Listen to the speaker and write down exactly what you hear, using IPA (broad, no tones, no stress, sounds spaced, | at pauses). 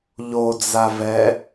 ʎ o d͡z a v ɛ